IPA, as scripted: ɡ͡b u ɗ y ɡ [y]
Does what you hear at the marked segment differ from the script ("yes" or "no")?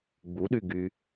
no